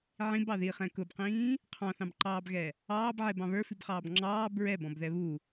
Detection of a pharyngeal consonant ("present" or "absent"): present